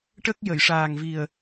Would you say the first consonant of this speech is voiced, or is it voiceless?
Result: voiceless